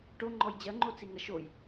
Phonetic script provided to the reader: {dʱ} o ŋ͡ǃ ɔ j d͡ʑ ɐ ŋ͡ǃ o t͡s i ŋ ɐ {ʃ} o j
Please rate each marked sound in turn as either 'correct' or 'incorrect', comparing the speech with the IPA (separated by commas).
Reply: incorrect, correct